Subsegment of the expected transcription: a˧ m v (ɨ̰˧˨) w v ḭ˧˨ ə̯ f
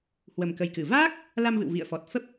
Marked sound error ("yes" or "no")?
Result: no